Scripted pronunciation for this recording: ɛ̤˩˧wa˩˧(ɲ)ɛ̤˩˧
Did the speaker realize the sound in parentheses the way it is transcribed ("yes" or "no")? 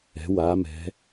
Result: no